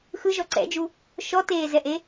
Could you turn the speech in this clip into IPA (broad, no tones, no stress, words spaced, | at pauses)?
xɯʒɔ ǀɛ̰d͡ʒu | ʃɔteːzɛʔe